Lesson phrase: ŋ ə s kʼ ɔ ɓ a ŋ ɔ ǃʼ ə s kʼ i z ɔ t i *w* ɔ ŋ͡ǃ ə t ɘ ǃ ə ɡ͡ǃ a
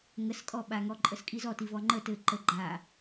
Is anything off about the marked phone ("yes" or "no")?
yes